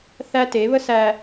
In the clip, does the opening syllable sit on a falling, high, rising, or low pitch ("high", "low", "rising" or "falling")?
high